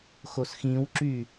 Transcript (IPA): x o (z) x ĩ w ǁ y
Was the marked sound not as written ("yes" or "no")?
yes